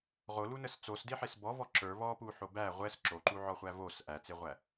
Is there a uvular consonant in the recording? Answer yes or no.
yes